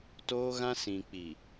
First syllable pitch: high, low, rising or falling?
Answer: high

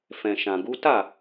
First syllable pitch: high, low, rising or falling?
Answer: low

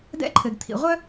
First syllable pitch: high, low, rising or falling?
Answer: high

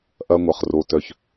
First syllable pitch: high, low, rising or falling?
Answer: high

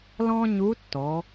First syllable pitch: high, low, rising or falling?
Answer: high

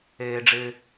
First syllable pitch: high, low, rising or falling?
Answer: low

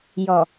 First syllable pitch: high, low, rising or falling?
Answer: low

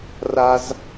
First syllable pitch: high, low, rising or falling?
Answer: high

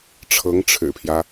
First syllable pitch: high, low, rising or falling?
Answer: rising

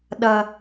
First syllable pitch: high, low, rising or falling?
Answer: high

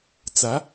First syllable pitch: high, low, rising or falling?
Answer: rising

